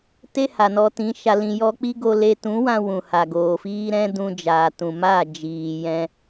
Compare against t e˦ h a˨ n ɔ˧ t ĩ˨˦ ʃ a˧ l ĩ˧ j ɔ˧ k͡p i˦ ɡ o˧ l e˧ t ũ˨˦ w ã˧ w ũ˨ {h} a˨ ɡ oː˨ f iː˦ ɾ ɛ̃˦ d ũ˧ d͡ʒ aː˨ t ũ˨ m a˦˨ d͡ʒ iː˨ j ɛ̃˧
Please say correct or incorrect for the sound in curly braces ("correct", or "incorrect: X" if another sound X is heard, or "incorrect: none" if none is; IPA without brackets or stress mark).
correct